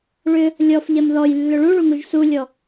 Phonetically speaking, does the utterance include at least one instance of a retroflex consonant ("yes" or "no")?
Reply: yes